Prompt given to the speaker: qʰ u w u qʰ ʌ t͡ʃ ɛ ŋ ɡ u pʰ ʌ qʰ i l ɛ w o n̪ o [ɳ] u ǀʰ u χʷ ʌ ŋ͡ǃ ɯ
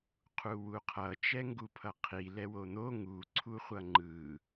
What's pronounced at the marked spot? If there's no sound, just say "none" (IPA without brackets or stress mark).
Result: ŋ